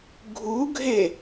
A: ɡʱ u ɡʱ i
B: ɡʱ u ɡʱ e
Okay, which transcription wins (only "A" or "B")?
B